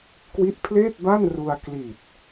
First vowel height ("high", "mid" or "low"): high